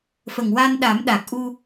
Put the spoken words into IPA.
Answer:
fə˨˩ŋwa˧n ɗa˨˩˦mɗa˨˩k̚ ʔu˧

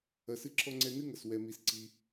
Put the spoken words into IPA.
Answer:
ɐ˩sɨ˧ǁʰɔ˧ ŋ͡ǀɛ˧ nɨ˥ŋɐ˩s wɛ˩mi˩s ǀi˩

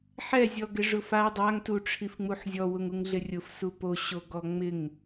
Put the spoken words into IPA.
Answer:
ħɛ zʲɔɡɪʐʊfa dˤaŋ tuʈ͡ʂʰifŋ͡muħzʲɔ wʊŋuŋɮɪrʲʊf supo ɕoɡɔŋ͡mɪŋ

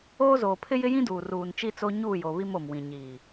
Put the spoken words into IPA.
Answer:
oː˦zoː˨ pʰɪ˦jɪ˦jĩ˦ duː˨ruː˨nt͡ʃi˦t͡so˦ ɲuː˦˨jo˨ βi˦mo˨mwĩ˨ ɲiː˨

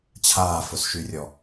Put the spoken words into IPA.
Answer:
t͡ɕʰaːfʊsʃyrʲɔ

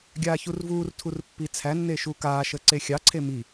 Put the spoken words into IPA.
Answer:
ɡʲaːçurvuːrtʰur pːit͡sʰænːe ʃukaːʃə ǀexʲɑǀʰe mi

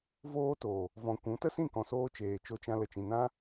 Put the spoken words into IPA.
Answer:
voː˧to˨ | vɔ̃˨ kʷũ˨˦ tə˦sĩ˦˨kɔ̃˨soː˧ t͡ʃeː˨t͡ʃo˧t͡ʃã˧ lə˨t͡ʃĩ˨nã˦

